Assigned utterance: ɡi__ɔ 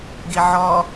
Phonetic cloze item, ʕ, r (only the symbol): ʕ